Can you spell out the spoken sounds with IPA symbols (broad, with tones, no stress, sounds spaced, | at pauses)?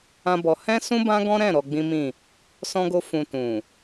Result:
ã˦ b ɔ˧ h ɛ̃˦ s ũ˦ b ã˦ ɡ ɔ̃˦ ɾ ɛ̃˦˨ ɾ ɔ˧ ɡ͡b ĩ˦ m ĩ˦˨ | s ɔ̃˦ ɡ o˦ f ũ˧ t ũ˨